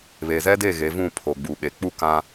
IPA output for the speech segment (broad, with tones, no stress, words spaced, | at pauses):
βe˨ zɛ˦de˦˨ ɣe˨˦vũ˦˨ pʰo˨ɡ͡bu˨ɓe˨ k͡pu˦kã˦